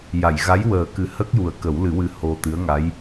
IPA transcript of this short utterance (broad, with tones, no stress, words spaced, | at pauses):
ja˨˩˨j ɣa˧˥jwəː˨˩kɨ˨˩˦ hə˦˥k̚ju˨˩ə̯kə˨˩˦wlɨ˨˩˦ wɨ˧ho˧t̪ɨ˧˥ə̯ŋa˧˥j